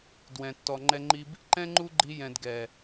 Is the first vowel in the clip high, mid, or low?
mid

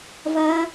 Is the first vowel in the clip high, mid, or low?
low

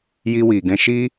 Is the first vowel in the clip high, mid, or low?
high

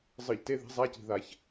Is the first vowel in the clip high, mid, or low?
high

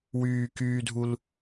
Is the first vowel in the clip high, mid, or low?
high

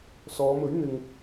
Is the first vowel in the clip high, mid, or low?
mid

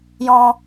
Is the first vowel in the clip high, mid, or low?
mid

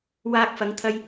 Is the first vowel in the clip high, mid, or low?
low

